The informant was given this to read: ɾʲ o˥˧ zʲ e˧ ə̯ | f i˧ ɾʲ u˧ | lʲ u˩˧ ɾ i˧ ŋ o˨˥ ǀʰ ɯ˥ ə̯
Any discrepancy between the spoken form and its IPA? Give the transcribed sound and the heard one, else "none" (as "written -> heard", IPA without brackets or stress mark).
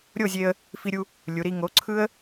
none